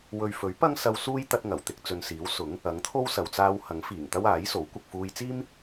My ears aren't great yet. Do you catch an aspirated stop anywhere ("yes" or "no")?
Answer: yes